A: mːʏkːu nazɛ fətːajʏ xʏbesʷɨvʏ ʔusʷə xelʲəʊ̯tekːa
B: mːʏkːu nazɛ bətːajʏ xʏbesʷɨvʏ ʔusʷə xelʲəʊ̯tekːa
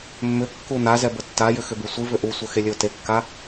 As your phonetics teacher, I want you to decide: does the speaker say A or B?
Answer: B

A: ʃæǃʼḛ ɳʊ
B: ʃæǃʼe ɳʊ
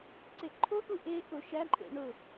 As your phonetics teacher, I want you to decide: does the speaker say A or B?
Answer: A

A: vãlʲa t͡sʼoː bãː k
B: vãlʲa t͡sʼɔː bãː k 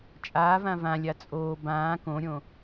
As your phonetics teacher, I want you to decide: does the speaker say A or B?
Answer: A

